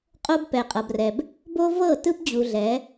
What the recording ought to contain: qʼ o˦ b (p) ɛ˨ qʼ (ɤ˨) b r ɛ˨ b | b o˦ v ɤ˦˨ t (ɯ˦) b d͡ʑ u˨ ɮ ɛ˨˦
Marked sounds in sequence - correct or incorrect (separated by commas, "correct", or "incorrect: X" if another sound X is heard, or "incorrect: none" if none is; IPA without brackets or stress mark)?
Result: correct, correct, correct